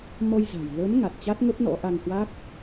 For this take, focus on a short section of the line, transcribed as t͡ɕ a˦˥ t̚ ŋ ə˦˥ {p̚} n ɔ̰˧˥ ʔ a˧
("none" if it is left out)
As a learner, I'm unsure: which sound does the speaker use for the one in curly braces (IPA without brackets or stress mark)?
p̚